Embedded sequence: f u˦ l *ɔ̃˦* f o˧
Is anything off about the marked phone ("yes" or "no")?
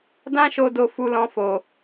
no